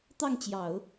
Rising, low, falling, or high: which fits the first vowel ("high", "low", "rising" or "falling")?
falling